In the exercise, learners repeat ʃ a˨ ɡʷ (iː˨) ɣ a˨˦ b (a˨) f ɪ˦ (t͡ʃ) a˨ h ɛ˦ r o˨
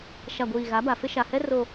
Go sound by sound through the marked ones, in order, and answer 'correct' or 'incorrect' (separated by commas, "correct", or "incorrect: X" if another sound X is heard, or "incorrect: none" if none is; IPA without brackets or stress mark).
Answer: correct, correct, incorrect: ʃ